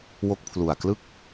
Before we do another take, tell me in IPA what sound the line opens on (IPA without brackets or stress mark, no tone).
w